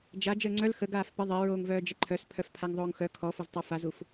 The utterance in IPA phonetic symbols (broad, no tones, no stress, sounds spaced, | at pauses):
d͡ʒ a d͡ʒ əː ŋ͡ǀ œ l x ə ɡ aː f p ə ðˤ e ɹ oː ŋ v œː d͡ʒ ə ǃʰ œ s pʰ œ f pʰ a ŋ ðˤ oː ŋ x œ kʰ ɔ f o z tˤ œ f a z u f